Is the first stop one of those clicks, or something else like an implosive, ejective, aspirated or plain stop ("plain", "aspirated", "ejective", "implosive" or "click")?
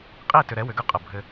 ejective